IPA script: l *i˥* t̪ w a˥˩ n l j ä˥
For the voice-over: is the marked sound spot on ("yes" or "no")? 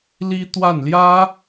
yes